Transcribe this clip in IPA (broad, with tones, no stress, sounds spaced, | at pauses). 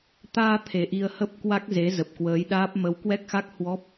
t̪ aː˧ t̪ʰ e˨˩ ʔ i˧ ə̯ h ə˦˥ p̚ k w a˦˥ k̚ z e˨˦ z ə˨˩ p̚ k w əː˨˦ j ɗ aː˦˥ p̚ m ə˨˦ w k w ɛ˦˥ k̚ x a˦˥ k̚ h w ɔ˦˥ p̚